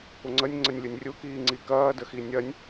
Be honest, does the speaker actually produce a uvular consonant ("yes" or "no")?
no